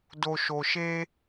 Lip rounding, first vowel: rounded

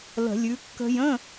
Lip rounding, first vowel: unrounded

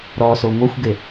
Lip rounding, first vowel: rounded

